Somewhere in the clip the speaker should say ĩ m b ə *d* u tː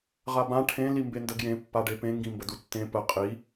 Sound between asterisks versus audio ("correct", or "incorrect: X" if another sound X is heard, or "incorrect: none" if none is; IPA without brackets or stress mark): correct